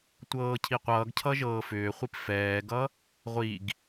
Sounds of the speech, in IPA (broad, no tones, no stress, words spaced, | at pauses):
tʷɤːcʰiqʷʌːɡ cʰʌʒɤːfʏːχʷip fɛːɡʌ | ʁʷiɡ